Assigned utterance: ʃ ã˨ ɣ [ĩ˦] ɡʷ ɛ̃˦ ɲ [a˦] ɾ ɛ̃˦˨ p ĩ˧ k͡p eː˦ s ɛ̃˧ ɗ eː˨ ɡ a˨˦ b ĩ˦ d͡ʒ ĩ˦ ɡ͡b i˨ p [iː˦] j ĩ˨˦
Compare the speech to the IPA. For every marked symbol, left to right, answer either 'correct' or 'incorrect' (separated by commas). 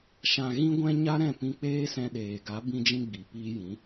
correct, correct, incorrect